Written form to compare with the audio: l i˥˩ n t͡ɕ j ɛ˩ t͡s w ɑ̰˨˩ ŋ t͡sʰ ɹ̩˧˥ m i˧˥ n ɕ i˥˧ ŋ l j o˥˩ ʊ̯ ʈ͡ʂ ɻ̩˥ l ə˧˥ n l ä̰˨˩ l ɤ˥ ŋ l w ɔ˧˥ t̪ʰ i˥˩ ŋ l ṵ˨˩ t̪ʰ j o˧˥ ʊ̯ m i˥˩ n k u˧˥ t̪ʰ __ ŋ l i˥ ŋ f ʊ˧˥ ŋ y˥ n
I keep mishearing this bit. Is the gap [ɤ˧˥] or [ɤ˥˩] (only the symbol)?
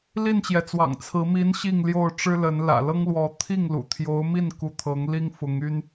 ɤ˧˥